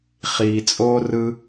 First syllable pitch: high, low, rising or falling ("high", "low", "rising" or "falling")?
low